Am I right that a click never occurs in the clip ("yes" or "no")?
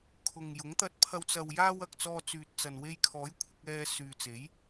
yes